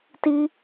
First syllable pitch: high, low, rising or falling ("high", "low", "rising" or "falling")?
high